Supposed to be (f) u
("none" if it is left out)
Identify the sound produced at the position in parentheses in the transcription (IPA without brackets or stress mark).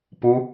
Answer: p